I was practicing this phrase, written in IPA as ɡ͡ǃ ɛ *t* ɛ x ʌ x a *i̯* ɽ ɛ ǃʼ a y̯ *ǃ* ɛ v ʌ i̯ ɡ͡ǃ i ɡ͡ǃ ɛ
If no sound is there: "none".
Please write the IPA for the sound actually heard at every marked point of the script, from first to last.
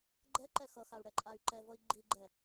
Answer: ǃ, u̯, ǃ

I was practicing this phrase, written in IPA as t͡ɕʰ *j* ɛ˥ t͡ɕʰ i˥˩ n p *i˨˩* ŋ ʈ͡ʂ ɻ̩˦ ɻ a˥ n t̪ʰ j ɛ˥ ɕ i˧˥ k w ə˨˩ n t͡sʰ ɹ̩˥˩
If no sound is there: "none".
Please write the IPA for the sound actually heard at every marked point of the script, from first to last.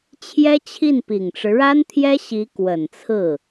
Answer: j, i˨˩

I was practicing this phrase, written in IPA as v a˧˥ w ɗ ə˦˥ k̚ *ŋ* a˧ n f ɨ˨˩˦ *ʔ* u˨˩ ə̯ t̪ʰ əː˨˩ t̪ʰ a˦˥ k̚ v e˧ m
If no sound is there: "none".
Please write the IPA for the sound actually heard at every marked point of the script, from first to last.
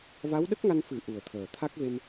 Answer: ŋ, ʔ

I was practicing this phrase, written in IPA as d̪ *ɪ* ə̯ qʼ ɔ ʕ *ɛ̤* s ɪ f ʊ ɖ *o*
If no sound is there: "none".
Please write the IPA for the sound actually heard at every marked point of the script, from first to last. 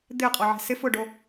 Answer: ɪ, ɛ̤, o

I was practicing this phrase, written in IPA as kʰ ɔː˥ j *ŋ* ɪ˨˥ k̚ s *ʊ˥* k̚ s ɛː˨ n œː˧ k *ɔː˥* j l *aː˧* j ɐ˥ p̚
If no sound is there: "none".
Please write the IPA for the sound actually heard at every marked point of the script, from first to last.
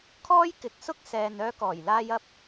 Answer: k, ʊ˥, ɔː˨˩, aː˧

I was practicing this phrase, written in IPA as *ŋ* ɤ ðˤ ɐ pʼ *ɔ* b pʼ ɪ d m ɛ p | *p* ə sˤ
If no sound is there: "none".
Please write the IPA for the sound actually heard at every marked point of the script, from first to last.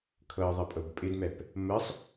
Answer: kʰ, ɤ, m

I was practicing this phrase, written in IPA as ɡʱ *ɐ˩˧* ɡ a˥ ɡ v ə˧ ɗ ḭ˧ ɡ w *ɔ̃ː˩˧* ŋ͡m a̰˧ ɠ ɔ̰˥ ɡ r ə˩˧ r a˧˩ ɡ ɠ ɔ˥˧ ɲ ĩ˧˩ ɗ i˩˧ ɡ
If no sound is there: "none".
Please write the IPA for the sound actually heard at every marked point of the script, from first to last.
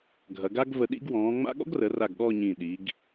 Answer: ɐ˩˧, ɔ̃ː˩˧

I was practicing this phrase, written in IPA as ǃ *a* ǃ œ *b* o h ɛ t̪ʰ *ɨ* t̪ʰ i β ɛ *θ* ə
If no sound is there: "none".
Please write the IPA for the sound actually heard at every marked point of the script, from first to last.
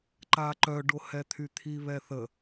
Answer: a, ɖ, y, θ

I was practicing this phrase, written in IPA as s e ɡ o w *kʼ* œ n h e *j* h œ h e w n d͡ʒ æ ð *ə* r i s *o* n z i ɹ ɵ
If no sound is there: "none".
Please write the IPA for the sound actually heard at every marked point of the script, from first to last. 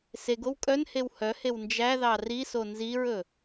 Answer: kʼ, w, ɑ, o

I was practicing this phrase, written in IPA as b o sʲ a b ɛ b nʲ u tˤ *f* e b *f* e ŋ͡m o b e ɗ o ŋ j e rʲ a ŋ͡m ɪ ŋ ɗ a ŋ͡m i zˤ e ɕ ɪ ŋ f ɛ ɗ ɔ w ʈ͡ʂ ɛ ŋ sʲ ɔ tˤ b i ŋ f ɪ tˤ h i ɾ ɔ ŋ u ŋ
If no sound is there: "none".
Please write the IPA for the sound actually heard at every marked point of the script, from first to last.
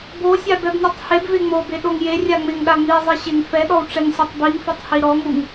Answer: h, v

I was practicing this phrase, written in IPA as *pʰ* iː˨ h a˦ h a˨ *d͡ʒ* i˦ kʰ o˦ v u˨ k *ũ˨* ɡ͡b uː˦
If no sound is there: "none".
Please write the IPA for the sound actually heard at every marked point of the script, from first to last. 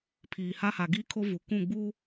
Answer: pʰ, ɡ, ũ˦˨

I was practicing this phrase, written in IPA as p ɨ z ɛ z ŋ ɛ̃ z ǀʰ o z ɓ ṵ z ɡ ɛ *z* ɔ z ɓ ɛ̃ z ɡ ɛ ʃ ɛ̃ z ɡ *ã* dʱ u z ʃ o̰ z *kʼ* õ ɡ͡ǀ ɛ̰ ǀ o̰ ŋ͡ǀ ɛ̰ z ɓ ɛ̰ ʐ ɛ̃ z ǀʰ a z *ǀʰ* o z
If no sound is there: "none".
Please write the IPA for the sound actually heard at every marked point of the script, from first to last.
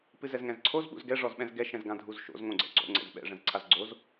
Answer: ʐ, ã, ŋ, ɡ͡ǀ

